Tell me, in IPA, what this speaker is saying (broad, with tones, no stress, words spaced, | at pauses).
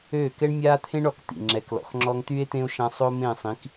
øː˦˨ kɛ˦ɳmʲaː˦t̪ʰẽ˦ɳɔ˨k t̪ḭ˨ŋ͡ǁɛ˨˦klɔ̰˨x ŋ͡ǁɔ˧ŋt̪y˦e̯t̪ẽ˦o̯ʃã˧ sˤo˦mẽ˦˨sˤĩ˨˦k